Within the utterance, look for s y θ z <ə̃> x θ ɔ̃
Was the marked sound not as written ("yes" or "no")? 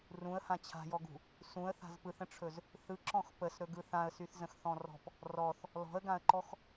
no